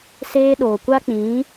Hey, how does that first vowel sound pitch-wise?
high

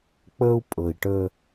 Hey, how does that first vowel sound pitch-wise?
high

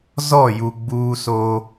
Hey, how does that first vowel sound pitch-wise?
falling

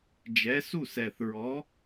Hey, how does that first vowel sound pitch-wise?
rising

